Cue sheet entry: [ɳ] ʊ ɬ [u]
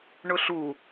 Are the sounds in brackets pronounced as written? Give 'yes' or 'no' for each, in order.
yes, yes

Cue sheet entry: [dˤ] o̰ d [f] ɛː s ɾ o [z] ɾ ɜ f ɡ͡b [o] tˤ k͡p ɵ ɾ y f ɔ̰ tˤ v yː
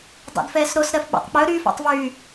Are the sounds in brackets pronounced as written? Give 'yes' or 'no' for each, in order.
yes, yes, no, no

